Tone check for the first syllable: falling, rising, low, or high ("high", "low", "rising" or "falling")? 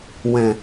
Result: low